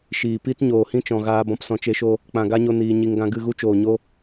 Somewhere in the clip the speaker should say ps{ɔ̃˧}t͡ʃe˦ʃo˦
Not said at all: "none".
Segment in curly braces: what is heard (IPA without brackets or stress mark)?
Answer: ɔ̃˧